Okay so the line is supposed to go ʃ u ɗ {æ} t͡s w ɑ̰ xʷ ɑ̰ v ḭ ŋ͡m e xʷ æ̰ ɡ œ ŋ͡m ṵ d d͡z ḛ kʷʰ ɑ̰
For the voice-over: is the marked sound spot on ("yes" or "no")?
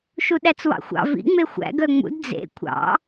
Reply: yes